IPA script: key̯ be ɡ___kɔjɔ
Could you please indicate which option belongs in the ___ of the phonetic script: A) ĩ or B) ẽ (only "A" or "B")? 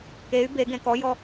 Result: B